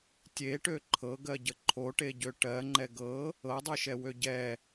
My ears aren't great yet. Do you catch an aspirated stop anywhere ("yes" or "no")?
yes